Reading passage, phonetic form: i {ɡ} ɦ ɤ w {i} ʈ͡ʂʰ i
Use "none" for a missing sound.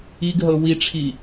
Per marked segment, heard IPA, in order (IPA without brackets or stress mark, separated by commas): ɡ, i